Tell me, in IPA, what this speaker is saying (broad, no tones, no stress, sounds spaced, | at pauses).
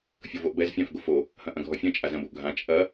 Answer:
fʲ o v o ʔ b ɛ z fʲ ã f ɡ o f o | h ɐ̃ ʔ ɐ̃ ɡʱ ɔ fʲ ɐ̃ t͡ʃʼ a z ɐ̃ b o ʔ ɡʱ ã t͡ʃʼ ɐ